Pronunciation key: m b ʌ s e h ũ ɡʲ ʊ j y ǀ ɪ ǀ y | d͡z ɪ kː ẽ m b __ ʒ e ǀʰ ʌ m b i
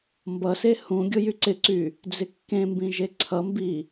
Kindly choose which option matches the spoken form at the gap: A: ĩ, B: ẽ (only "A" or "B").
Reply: A